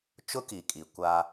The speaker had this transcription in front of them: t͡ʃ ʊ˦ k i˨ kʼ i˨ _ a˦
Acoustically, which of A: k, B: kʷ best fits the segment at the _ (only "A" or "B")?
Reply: B